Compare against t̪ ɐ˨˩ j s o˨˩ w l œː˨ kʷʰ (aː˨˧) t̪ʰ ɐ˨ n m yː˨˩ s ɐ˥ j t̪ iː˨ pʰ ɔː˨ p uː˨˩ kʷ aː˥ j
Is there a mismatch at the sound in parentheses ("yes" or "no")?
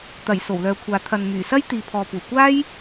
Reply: yes